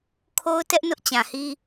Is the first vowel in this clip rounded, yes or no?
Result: yes